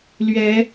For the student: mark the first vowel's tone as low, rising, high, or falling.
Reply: rising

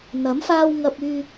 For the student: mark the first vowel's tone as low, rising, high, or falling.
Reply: rising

